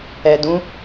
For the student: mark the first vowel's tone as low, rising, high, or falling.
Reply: low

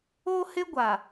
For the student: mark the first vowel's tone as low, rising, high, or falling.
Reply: high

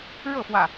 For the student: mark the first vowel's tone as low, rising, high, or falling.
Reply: falling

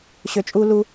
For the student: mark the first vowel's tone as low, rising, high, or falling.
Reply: low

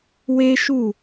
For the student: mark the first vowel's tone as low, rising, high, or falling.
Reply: high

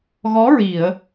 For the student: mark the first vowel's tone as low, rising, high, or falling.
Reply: rising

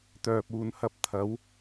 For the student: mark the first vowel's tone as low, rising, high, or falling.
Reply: low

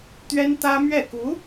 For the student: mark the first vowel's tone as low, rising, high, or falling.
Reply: high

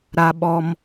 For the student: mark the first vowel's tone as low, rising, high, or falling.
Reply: high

